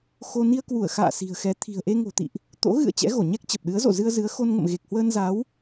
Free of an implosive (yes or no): no